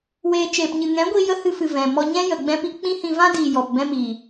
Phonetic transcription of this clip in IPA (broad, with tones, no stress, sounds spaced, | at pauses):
w eː˧ t͡ʃ eː˨ p ɲ ɨ˨ ŋ ɛ̃˨˦ ɡʷ iː˧ j ə˦ h ɨ˧ f ɨ˨ v ɛ̃˨ m ɔ˧ ɲ ɛ̃˦ j ə˨ ɡ͡b ɛ̃˦ p i˦ k͡p ĩ˦ h ĩ˧ v ã˦ d iː˨ j ɔ˨ p b ɛ̃˦ m iː˨